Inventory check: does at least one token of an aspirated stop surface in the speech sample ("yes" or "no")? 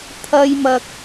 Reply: yes